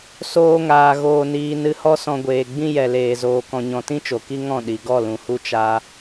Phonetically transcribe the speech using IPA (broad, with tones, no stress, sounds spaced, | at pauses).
s oː˧ ŋ aː˨ ɣ oː˧ n iː˧ n ɨ˧ h ɔ˦ s ɔ̃˧ ɡʷ eː˨ ɡ͡b ĩ˦ j ɛ˨ l eː˨ z oː˨ k ɔ̃˨ ɲ ɔ̃˨ t ĩ˦ t͡ʃ o˨ k i˦ ŋ ɔ̃˦˨ ɗ i˨ ɡ ɔ˦˨ l ũ˨ h u˦ t͡ʃ a˦